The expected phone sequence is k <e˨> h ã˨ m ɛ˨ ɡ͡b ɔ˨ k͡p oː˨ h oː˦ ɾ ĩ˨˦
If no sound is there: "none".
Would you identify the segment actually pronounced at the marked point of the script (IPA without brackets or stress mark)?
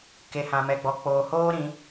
e˨